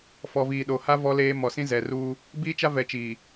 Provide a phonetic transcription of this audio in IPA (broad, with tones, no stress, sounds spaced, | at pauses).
f ɔ˨ v iː˨ ɗ o˨ h a˦ v ɔ˦ l eː˦ m ɔ˨ s ĩ˦ z ɛ˨ r uː˦ | b iː˦ t͡ʃ a˦ v ɛ˨ t͡ʃ iː˨